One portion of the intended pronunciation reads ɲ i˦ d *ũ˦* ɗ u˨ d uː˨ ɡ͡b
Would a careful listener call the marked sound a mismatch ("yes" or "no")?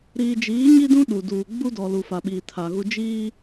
no